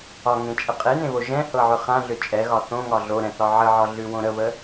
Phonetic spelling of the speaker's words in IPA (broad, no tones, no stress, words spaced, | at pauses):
ɒŋẽt͡ʃʼə qʼenẽβo ʒɛ̃hɤʕʏ χãɮʏ t͡ʃʼɛɣɒ θõŋɒ ɮoɾɛ̃θɒ ʕəʕɒɮʉwõ ɾəβə